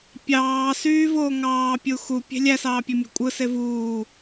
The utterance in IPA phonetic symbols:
pʲɑː syːvoːŋɑːpʲu xu pʲe̤lʲæsɑː pʲømʲṳkʷʼɯse vuː

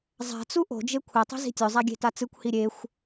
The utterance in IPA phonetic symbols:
zˤa̤t͡su ʔo̤d͡ʒe kʷʰetˤi̤ zi̤tʲɵzˤa ɡʲe̤tat͡sɨkʷhi ɾʲexʷ

